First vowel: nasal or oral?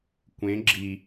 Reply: nasal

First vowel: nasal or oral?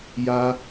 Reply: oral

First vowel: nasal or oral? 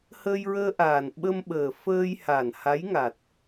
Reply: oral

